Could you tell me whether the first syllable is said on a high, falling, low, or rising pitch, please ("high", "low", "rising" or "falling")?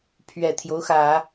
low